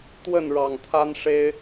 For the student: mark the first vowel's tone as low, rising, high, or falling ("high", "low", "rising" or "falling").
falling